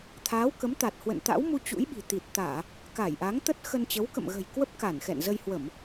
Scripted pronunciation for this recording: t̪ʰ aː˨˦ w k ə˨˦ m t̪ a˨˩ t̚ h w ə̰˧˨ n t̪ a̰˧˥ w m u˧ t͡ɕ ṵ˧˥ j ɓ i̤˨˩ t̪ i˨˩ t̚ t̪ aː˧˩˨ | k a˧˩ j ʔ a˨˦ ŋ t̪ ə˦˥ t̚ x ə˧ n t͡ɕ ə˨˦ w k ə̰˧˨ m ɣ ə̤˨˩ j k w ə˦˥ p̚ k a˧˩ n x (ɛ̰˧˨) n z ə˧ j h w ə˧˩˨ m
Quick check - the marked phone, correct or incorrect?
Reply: correct